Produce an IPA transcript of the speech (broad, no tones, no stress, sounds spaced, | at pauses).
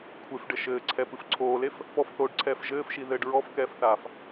kʷʰ e f ɖ ɘ ʃ ɘː ǀʰ ɛ p ɨ f ǀʰ oː l e f | p ɔ f θ oː ɖ ǀʰ ɛː f ʒ ɘː f ʃ i ð ɘː ɖ ɹ ɔ f k ɛː f θ aː f